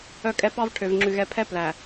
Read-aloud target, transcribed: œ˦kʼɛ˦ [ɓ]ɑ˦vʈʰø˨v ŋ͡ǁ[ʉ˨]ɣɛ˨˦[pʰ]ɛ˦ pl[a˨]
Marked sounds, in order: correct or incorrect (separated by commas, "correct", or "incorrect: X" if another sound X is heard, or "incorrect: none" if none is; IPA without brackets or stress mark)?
incorrect: p, correct, correct, incorrect: æ˨